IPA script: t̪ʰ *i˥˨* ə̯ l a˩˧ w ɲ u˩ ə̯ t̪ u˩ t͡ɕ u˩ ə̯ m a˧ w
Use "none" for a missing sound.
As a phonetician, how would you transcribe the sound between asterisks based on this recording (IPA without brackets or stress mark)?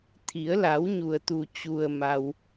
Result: i˩˧